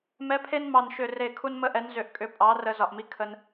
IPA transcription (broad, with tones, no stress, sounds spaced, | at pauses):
m ɛ˨˥ pʰ e˦ n m ɑ˧˩ n ʃ ʏ˧˩ r e˧˩ kʰ u˦ n m ə˦ ʔ ɛ˨˥ n z ʏ˧˩ ʔ kʼ ʏ˨˥ pʼ ɑ˨˥ r ə˦ z ɒ˧˩ ʔ m i˦ kʰ ə˦ n